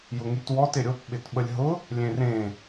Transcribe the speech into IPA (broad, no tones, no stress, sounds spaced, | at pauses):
j ʊ ŋ y t w ɔ t ɪ ɾʲ o p ɓ ɪ t ɓ ə lʲ ɦ ʊ | lʲ ẽ r ẽ